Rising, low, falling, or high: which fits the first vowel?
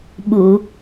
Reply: low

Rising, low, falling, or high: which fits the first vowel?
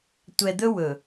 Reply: low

